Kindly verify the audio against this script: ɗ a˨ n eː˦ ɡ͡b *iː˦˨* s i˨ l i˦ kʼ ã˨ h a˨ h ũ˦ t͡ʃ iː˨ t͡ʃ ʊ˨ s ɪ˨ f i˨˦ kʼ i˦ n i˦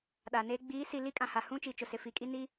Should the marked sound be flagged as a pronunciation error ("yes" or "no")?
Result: yes